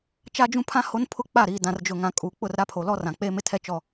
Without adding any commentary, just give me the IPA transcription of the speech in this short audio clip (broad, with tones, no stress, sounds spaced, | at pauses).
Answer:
t͡ʃ a˦ d͡ʒ ũ˦ pʰ ã˦ h o˦ n pʰ ʊ˦ k͡p a˦˨ ɾ iː˨ d ã˨ r d͡ʒ ʊ˨ ŋ ã˨ kʼ uː˨ k͡p ʊ˦˨ r ɾ a˦ pʰ o˨ l ɔ˦ r ã˨ k͡p eː˦ m ɪ˦ tʰ ɛ˦ t͡ʃ ɔ˦˨